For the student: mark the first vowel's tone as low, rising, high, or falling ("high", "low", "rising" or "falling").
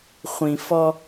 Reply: low